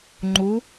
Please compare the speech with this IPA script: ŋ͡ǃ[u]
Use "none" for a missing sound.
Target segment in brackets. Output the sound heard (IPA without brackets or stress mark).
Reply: u